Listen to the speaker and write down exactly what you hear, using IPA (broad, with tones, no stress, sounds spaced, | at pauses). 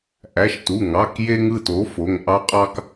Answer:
ʔ æ˩˧˩ ʃ t u˩˧˩ ŋ ɑ˩˧˩ k j e˧ ŋ ɯ˥˧ t o˨˥ f o˩˧˩ ŋ ʔ ɑ˧ qʼ ɑ˧ k